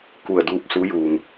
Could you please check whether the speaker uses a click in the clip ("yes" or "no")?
no